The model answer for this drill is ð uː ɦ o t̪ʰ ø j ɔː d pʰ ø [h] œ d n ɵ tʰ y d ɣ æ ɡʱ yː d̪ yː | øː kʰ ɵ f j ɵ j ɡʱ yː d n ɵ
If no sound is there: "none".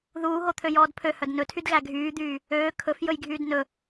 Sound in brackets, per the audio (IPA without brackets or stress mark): h